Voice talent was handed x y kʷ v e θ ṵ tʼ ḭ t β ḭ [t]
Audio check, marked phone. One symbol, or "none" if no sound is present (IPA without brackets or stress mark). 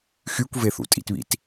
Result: t